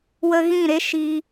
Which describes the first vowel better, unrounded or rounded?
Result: unrounded